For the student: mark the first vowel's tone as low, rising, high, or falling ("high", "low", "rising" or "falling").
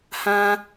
high